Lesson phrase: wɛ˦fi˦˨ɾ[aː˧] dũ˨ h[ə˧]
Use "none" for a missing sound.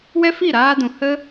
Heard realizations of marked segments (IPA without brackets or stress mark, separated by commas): aː˧, ə˦